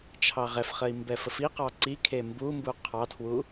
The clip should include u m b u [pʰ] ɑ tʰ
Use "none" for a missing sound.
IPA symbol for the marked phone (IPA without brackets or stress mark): qʰ